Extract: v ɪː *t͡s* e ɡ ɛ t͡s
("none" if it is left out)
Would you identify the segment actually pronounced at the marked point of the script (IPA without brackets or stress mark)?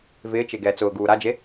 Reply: t͡ʃ